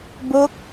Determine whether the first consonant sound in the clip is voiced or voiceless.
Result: voiced